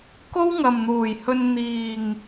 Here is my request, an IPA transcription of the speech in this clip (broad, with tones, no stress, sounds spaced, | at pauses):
k o˥ w ŋ ɐ˨ m n̪ uː˨˩ j h ɵ˧ n n̪ iː˨ ŋ